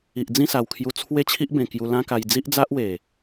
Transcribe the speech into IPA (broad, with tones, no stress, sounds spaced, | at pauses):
i˨ ʔ d͡z ĩ˥˧ s a˨˩ w kʰ j u˧ t͡sʰ w e˥˧ t͡ɕʰ i˦ ʔ b ẽ˨˩ k j u˧ l ã˦ k a˧ j d͡z i˦ ʔ d͡z a˦ ʔ w e˨˩